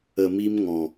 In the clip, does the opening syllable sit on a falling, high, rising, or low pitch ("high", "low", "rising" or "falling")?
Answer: low